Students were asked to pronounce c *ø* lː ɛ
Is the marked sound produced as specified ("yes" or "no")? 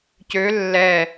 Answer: yes